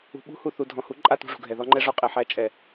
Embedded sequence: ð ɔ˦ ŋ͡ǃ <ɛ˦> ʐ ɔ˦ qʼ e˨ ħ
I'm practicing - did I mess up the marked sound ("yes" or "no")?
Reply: no